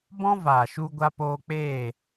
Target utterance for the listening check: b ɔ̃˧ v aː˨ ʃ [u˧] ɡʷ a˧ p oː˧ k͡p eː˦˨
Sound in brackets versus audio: correct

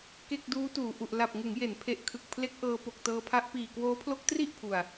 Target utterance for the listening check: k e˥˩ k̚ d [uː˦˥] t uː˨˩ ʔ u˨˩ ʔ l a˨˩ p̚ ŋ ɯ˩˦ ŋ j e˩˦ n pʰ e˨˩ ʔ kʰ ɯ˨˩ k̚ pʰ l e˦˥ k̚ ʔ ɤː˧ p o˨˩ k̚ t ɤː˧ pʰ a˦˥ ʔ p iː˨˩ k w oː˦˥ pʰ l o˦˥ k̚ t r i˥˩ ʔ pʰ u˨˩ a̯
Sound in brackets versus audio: correct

